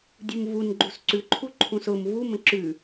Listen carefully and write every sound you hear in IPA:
dʲ u m v u n ɡ͡ǃ u s ǀ ʉ ǃʰ u ǃʰ ũ s ʊ m v u m ə̃ ǁ ʉ

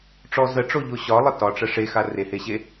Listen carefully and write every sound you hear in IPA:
ʈ͡ʂ ɔ z ə ʈ͡ʂ o ʎ o ɕ ɒ lˠ ə t ɒ ʈ͡ʂ ə ʂ e x a r e h e ɕ e

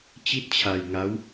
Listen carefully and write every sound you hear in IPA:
t͡ɕ i˥˩ t̚ t͡ɕʰ a˧ j ŋ a˦˥ w

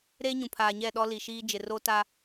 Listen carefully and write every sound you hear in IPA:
ɾ eː˦ ɲ ũ˨ pʰ aː˨ ɲ ɛ˦˨ ɗ ɔ˦ l i˨ ʃ iː˦ d͡ʒ ɪ˨ r o˦ t a˦

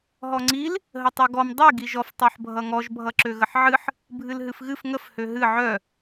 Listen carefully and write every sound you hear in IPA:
ɦ ɔ ŋ͡ǀ i l | ɦ ə tˤ ø ɡ ɔ m dˤ i ɡ i ʒ ɔ f tˤ o ħ bʱ ʌ ŋ ɔ ʒ bʱ ʌ ǁ ø ɣ ə ħ ʕ ɨ ħ | bʱ ɨ l ɦ ɨ f ɣ ɨ f ŋ ə f h ø ɦ ɨ ʕ œ

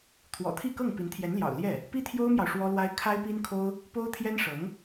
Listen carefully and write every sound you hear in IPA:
t̪ʰ w ɔ̰˨˩ t̪ʰ i˥˧ k ɤ˥˩ ŋ p i˧˥ n t̪ʰ j ɛ˧˥ n l j ɑ̰˨˩ ʊ̯ l j ɛ˥˩ | p i˥ t̪ʰ j o˥ ʊ̯ m j ɑ˨ ʊ̯ ʂ w ɔ˥ l w a˥ ɪ̯ kʰ a˥ ɪ̯ p i˥ n kʰ o˥ ʊ̯ | p o˥ ʊ̯ t̪ʰ j ɛ˥ n ʂ ɤ˧˥ ŋ

